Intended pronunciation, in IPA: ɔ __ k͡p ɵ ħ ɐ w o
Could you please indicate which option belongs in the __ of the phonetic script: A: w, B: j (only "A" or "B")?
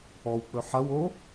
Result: A